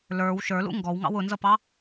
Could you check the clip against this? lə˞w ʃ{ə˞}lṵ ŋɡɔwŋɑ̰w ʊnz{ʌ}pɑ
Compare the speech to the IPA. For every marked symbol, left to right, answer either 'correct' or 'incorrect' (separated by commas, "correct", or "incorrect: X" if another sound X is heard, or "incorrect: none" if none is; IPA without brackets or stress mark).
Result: correct, correct